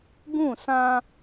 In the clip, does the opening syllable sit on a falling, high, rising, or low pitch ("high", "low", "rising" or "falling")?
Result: falling